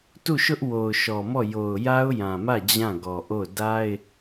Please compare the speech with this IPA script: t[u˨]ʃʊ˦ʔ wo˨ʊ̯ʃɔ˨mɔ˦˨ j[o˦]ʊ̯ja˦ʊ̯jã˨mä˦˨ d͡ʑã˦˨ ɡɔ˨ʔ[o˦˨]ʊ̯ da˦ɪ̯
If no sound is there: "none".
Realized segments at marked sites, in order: u˦˨, o˨, o˦˨

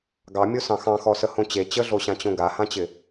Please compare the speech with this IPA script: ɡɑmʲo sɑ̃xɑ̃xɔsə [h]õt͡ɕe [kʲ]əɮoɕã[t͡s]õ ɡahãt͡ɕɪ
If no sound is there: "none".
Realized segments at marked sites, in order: h, t͡ɕ, t͡ɕ

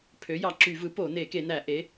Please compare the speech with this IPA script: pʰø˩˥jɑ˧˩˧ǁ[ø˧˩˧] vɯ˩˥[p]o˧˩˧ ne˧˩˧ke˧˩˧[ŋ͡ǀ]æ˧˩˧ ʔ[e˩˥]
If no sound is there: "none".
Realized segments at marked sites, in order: y˧˩˧, p, n, e˩˥

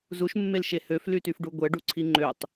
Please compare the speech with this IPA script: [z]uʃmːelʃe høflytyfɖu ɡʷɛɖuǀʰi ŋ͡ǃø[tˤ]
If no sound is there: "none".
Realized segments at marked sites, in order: z, tˤ

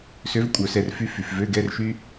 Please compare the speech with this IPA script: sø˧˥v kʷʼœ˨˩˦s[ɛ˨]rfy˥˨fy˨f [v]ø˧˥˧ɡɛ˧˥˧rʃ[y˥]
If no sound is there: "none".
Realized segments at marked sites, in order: ɛ˨, v, y˥

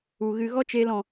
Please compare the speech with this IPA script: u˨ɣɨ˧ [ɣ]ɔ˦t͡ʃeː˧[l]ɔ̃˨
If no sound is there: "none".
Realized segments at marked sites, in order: ɣ, l

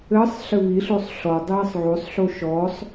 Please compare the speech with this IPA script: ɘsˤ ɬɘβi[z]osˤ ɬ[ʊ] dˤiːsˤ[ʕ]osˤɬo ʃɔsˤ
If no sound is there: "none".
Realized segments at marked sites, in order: ɬ, ɔ, ʕ

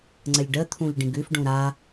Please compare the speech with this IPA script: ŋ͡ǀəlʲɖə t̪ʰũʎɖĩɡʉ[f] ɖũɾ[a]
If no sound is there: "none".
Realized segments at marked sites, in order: f, a

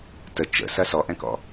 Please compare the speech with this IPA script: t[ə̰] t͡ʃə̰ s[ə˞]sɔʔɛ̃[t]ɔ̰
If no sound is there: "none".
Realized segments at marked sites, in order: ə, ɐ, k

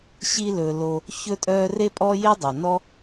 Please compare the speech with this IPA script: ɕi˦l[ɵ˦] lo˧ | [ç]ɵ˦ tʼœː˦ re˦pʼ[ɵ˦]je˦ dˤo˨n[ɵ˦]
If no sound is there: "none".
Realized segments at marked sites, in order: ɵ˧, ç, ɔ˦, ɔ˦

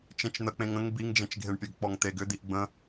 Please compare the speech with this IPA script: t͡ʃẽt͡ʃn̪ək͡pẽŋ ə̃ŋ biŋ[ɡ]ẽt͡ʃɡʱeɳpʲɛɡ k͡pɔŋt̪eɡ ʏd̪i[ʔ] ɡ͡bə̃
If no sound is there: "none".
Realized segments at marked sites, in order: d͡ʒ, ʔ

